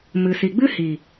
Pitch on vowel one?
low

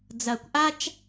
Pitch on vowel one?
low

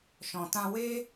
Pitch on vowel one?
low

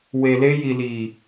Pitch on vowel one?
low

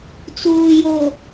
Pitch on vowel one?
low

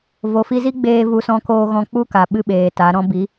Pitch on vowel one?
low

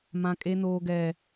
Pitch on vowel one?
high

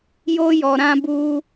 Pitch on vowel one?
high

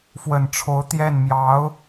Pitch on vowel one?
low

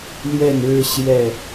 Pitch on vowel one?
falling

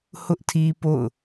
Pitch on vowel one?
high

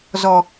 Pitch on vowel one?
low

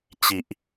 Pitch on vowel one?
low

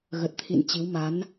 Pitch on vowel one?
low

